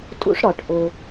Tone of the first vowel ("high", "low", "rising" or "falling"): high